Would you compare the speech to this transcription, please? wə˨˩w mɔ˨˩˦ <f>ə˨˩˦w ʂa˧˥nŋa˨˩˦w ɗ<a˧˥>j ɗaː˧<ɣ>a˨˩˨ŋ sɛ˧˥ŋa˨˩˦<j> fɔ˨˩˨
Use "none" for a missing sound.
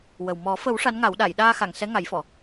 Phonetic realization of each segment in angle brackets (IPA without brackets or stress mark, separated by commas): f, a˨˩˨, x, j